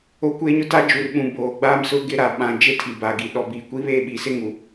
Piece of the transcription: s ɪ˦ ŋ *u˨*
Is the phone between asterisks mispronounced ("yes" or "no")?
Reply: no